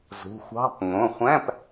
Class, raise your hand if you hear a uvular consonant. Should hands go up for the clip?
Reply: yes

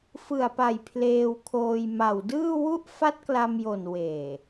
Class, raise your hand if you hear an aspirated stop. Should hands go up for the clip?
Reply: yes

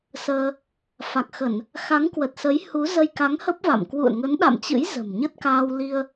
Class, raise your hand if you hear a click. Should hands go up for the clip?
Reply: no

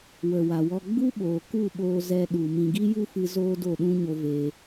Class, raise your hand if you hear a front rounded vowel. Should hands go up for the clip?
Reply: no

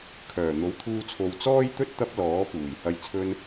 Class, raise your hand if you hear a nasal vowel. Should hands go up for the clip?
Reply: no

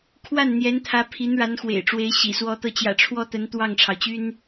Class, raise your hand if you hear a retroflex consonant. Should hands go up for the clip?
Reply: yes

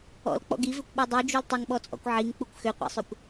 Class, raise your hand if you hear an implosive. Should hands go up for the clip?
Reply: yes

